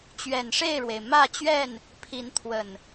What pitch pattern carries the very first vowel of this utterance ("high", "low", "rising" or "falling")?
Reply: low